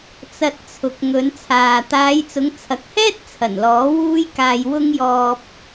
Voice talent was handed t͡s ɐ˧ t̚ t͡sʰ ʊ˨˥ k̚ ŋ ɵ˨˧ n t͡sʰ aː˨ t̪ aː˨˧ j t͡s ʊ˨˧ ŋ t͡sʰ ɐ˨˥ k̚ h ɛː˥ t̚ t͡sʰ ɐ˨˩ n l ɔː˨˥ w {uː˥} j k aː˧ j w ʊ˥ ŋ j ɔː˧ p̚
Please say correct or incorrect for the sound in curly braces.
correct